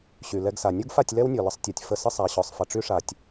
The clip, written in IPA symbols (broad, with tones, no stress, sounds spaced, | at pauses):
ɕ y˨ l ɛ˦ ɡ s a˨ nʲ u˦ ɡ f a˦˨ tʲ l ɛ˦ w nʲ ɔ˨ l ə˧ sˤ tʲ ɔ˨ tʲ f ə˧ s ə˦ sˤ a˨ ɕ ɔ˨ sˤ f ə˨ ʈ͡ʂ y˧ ʂ a˨ tʲ